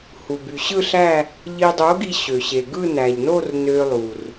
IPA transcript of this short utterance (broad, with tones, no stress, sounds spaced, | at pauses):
h u˩ b y˩ ɕ ɯ˥˧ ɬ æ˥˧ | ʎ i˧ dˤ o˨˥ ɡ i˧ ɕ ø˩ ɕ e˩ ɡ ɯ˥˧ n æ˩ ʎ n o˥˧ r n ø˧ lˠ u˩ r